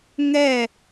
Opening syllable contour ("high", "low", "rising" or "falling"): falling